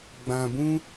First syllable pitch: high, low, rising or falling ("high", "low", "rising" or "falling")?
low